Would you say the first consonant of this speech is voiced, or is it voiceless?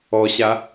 voiceless